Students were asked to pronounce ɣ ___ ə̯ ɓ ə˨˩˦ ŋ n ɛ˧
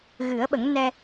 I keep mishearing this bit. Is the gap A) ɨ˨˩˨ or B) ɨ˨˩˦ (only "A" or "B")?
B